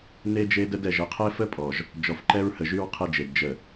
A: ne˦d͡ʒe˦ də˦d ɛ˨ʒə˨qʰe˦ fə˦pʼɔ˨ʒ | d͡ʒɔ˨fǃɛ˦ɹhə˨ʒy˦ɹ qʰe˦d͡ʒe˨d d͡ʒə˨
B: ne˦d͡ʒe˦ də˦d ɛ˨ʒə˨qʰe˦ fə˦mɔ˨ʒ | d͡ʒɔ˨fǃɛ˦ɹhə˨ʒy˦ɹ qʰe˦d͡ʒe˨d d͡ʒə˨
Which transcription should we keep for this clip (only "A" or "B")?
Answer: A